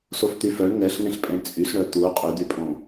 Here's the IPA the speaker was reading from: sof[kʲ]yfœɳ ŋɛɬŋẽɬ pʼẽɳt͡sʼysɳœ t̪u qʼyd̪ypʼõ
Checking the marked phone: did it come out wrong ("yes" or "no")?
yes